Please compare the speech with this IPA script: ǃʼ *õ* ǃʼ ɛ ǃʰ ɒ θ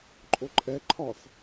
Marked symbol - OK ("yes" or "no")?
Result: no